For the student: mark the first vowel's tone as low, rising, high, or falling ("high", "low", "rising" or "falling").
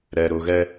low